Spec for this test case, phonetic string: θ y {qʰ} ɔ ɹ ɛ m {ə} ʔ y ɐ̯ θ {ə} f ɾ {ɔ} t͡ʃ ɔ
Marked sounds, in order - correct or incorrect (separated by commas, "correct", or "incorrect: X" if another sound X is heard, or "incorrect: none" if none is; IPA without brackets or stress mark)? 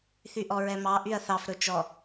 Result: incorrect: ʔ, incorrect: ɑ, incorrect: ɑ, incorrect: ɵ